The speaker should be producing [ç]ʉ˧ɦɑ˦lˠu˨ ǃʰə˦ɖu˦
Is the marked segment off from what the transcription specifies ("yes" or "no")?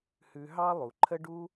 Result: yes